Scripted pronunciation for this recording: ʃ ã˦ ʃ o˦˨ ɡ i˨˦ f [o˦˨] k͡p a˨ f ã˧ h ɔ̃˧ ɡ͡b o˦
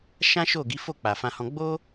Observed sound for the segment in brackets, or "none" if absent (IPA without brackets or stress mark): o˦˨